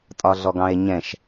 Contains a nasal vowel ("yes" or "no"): yes